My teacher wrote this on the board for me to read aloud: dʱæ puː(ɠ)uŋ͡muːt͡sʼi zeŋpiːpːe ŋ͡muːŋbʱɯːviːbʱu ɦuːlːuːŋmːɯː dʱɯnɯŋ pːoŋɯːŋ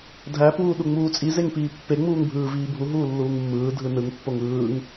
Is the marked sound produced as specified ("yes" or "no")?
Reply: no